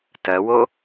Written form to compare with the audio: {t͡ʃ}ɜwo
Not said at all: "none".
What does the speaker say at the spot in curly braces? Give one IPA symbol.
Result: t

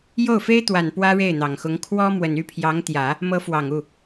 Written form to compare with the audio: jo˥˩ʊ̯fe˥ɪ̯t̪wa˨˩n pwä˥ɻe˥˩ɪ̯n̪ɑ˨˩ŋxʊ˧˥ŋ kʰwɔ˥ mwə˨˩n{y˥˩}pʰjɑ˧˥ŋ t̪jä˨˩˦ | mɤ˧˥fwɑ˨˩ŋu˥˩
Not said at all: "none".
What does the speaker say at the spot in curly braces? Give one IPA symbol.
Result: y˥˩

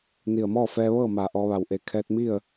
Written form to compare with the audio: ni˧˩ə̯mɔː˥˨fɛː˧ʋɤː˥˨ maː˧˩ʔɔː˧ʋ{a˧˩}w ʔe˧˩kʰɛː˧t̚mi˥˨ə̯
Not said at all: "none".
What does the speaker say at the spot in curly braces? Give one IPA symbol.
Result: a˧˩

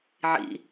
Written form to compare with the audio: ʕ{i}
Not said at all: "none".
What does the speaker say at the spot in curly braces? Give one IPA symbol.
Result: ḭ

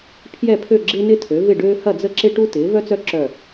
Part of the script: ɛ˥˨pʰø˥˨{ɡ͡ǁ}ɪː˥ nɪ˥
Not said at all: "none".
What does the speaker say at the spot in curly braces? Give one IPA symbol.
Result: ɡ͡ǁ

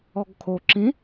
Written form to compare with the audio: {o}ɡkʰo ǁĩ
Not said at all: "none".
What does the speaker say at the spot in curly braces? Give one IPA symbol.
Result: ɔ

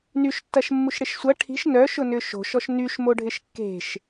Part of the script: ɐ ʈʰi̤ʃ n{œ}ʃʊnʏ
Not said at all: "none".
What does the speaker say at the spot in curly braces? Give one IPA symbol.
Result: œ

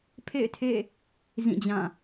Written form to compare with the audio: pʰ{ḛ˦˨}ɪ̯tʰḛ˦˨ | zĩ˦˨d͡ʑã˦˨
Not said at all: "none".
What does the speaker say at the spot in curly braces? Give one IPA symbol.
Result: ḛ˦˨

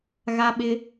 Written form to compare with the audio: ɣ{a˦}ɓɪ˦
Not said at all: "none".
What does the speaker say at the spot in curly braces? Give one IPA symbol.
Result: a˦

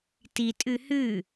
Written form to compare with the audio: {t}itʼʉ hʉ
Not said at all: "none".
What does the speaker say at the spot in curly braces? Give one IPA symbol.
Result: t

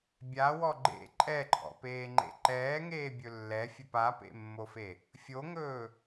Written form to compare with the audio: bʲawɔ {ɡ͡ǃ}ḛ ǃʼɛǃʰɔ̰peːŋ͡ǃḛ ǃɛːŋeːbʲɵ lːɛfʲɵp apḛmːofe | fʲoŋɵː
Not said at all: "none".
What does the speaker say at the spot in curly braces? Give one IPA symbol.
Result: ɡ͡ǃ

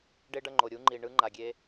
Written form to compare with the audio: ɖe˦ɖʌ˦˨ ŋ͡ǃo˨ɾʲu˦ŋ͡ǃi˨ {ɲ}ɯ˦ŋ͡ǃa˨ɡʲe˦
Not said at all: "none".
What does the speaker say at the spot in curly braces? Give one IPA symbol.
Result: ɳ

